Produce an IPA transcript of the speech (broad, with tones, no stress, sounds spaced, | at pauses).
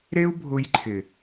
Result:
ɾ e˦ u̯ bʱ ʊ˧ j ǃʰ ɪ˨